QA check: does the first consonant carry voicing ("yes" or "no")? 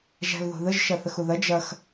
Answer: yes